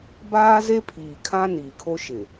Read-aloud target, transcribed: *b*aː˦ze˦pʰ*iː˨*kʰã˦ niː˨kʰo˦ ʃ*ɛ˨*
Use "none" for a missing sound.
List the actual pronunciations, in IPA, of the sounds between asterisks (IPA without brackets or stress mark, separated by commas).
b, iː˨, ɪ˨